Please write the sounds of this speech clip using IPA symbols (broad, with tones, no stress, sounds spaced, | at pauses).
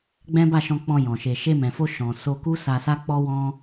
ɡ͡b ɛ̃˦ b a˦˨ ʃ ɔ̃˧ k͡p ɔ̃˧ j ɔ̃˨ ʃ e˨ ʃ e˧ m ɛ̃˨ f o˧ ʃ ɔ̃˨ s o˧ k u˦ s a˧ s a˦ k͡p ɔ˦ w ɔ̃˦